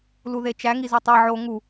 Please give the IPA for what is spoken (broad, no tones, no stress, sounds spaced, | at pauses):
l u ð e t͡ʃ æ ŋ i z u tˤ e ʕ o ŋ u